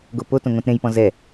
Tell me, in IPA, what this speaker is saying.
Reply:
ɡopotõŋõt ɾẽjpɔ̃ zɛ

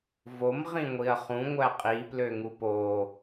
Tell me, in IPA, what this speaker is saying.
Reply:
vom ʁĩŋʷiɐ̯χũ ŋʷæqʼi pløŋupo

